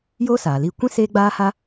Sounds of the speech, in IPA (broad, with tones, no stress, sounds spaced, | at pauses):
j oː˦ s aː˨ l i˧ kʷ ĩ˦ s eː˦ ɡ͡b aː˦ h a˦